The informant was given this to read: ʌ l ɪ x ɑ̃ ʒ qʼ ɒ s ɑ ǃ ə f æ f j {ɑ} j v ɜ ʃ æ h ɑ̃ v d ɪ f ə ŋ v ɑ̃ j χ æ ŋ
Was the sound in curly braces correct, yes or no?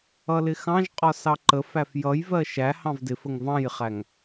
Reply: no